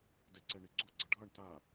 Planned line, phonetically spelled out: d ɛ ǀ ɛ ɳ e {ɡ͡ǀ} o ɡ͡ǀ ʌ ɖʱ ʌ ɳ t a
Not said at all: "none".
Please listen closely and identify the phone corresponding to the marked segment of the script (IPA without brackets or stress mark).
ɡ͡ǀ